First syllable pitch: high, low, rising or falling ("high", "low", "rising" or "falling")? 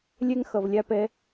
high